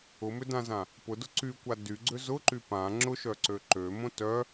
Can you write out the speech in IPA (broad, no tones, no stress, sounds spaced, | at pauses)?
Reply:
ʊ m ʏ d ã z ã | p ʊ d ʊ ǀ y kʷ a d y ɡ͡ǀ ʏ z ʊ ǃ y p ã ŋ͡ǁ ʊ ʃ œ ǀ ø ǃ ø m õ t œ